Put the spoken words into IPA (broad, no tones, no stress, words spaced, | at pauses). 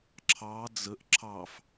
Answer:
ǁʰɑ d͡zəʔ ǁʰɑf